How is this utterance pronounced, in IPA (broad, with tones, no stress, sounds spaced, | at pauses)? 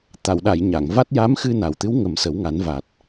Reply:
t̪ a˨˩˨ w ɗ a˨˩˨ j ɲ a˨˩˨ ŋ v a˦˥ t̚ j a˧˥ m x ɨ˧ n a˨˩ w t̪ ɨ˧˥ w ŋ ə˨˩˦ m s ə˨˩˦ w ŋ a˨˩˦ n v a˨˩ t̚